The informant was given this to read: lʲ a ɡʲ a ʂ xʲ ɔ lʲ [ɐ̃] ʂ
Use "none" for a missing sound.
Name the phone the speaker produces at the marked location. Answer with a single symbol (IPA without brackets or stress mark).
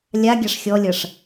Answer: ɐ